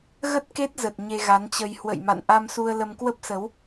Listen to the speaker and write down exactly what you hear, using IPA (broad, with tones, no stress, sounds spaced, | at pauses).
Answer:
ɣ ə˦˥ t̚ k e˦˥ t̚ z ə˨˩ t̚ ɲ e˧ ɣ a˨˦ n t͡ɕ ə˧ j h w ə̰˧˨ j m a̰˧˨ n ʔ a˧ m s u˧ ə̯ l ə˧ m k w ə˦˥ p̚ s ə˨˦ w